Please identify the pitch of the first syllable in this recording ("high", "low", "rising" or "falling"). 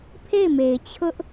falling